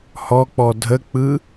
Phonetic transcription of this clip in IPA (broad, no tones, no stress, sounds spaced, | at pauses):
h ɔ k͡p ɔ dʱ ə k͡p ɯ